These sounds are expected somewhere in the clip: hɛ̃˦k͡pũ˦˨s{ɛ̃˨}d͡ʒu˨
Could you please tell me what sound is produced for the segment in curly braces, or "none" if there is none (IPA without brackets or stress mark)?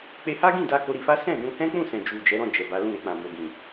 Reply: ɛ̃˨